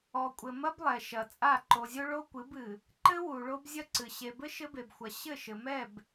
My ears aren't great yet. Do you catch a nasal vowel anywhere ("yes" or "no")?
no